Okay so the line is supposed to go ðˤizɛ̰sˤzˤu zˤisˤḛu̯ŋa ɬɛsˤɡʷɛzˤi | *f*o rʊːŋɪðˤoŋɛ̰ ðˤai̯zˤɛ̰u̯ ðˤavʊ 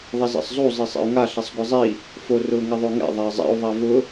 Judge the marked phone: correct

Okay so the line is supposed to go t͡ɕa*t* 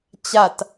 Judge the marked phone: correct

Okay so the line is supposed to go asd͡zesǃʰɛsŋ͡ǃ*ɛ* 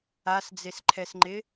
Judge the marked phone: incorrect: ɪ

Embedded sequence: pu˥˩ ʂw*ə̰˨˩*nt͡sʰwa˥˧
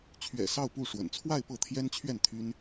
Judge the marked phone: correct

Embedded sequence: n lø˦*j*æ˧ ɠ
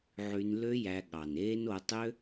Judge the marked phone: correct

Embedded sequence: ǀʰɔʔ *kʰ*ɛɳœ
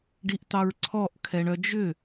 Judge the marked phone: correct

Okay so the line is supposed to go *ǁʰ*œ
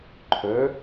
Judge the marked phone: incorrect: ǃʰ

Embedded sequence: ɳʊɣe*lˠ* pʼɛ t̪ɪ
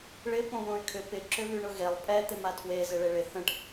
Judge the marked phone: correct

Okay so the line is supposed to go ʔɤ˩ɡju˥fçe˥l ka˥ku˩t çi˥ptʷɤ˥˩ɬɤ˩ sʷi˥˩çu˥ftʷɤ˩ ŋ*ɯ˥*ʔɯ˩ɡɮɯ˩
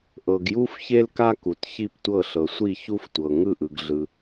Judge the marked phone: incorrect: ɯ˥˩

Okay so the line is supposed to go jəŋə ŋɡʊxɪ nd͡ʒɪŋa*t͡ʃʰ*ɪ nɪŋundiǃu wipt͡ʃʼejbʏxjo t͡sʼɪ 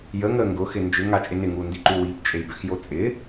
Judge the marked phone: incorrect: t͡ʃʼ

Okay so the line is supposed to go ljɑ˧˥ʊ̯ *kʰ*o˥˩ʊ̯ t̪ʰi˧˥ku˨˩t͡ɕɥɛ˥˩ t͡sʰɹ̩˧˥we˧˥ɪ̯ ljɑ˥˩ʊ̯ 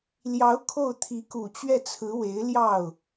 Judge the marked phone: correct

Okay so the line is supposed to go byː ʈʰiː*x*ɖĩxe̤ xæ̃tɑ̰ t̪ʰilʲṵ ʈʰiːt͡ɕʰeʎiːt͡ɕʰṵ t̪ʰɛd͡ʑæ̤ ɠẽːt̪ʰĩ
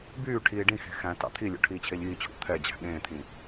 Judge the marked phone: incorrect: none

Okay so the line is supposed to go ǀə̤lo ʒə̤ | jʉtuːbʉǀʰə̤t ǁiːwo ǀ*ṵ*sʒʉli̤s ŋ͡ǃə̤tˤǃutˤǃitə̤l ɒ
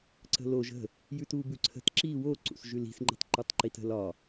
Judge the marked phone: correct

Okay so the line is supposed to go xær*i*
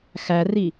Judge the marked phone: correct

